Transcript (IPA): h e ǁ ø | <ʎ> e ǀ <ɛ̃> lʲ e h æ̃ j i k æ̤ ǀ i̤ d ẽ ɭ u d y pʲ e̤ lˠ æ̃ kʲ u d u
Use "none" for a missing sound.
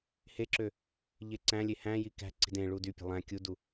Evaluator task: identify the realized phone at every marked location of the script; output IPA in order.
ʎ, æ̃

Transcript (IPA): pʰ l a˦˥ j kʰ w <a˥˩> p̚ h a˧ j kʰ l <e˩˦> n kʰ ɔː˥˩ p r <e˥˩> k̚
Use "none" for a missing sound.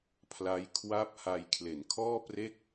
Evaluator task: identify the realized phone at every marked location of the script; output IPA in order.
a˥˩, e˩˦, e˥˩

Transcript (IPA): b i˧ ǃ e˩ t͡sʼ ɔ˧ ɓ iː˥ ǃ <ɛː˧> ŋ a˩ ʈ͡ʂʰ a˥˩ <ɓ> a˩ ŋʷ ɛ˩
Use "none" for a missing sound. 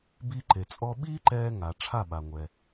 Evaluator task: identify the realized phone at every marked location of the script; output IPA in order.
ɛː˧, ɓ

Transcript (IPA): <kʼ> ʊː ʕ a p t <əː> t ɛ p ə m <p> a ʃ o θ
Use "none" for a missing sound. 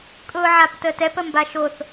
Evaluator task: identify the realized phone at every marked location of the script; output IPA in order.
kʼ, əː, b

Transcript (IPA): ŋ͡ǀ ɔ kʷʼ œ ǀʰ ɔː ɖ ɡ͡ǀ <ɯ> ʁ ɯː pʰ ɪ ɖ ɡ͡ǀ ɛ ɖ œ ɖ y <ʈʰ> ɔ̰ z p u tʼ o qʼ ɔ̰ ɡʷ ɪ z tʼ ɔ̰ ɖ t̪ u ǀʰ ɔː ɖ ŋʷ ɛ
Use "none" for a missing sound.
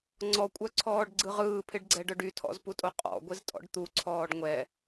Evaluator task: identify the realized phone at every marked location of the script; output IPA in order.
ɯ, tʰ

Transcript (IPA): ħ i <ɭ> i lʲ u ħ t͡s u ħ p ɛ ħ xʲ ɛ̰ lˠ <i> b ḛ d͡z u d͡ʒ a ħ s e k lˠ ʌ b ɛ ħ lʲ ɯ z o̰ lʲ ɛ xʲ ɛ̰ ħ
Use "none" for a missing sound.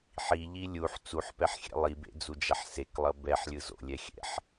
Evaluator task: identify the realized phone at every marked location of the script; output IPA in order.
ʎ, i

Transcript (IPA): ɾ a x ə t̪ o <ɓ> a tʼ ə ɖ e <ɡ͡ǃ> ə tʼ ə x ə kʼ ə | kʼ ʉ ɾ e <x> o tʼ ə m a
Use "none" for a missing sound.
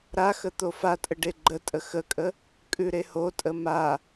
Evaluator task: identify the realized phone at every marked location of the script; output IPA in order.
f, ɡ͡ǃ, h

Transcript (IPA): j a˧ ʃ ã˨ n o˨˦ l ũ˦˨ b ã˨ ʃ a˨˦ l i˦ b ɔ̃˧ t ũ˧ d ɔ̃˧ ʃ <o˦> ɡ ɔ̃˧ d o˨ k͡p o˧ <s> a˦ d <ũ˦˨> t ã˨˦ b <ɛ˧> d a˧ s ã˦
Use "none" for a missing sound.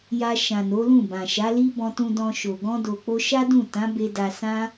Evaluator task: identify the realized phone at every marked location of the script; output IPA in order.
o˨, ʃ, ũ˦˨, e˧

